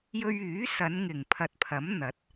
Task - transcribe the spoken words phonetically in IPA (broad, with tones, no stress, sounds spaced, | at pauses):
j ɵ˧ ɥ yː˨˥ s ɐ˨˧ n ŋ ɪ˨˩ ŋ pʰ ɐ˨ t̚ pʰ ɐ˨˥ m n̪ ɐ˨˥ t̚